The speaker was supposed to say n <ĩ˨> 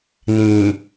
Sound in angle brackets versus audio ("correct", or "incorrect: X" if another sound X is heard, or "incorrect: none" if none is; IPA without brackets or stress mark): correct